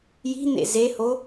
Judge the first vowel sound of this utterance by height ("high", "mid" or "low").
high